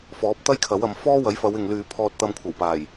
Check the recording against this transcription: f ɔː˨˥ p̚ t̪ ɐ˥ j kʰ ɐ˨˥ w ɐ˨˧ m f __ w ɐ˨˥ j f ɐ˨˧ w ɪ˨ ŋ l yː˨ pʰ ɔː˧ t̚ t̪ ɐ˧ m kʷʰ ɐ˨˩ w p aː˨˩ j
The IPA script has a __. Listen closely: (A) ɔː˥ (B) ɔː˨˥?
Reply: A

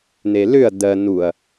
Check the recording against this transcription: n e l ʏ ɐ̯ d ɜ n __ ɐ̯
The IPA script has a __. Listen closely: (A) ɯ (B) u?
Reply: B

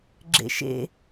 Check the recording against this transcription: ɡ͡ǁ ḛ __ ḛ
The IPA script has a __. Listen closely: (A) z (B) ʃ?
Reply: B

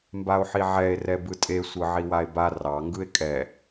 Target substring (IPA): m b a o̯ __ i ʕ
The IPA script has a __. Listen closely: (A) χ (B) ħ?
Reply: B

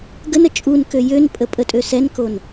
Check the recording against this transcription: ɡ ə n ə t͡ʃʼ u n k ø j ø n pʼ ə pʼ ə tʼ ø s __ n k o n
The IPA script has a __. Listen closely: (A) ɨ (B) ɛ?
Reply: B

